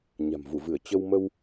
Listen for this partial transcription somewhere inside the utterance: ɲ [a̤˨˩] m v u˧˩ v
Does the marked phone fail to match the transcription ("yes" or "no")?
no